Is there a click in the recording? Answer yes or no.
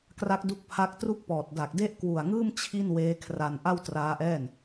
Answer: no